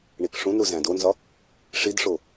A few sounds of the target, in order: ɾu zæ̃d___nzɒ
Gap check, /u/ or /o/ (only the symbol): o